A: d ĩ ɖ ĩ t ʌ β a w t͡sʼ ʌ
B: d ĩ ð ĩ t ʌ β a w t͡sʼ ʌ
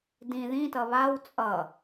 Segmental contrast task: B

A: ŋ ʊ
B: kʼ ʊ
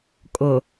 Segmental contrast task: B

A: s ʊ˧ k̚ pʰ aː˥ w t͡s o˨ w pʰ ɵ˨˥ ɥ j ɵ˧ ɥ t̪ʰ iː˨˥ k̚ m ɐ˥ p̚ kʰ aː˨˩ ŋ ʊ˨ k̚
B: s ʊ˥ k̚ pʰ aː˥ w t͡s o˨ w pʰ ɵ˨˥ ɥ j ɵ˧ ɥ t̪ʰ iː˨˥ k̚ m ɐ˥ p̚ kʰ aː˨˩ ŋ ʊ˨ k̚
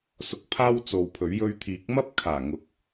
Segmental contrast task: A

